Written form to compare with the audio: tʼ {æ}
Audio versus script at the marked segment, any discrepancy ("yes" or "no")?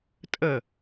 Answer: yes